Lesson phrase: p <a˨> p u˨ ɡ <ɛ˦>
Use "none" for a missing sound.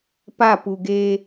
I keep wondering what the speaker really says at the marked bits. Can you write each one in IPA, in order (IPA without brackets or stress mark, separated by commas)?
a˦˨, e˦